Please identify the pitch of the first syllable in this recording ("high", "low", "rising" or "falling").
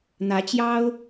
rising